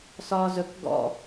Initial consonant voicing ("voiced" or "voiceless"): voiceless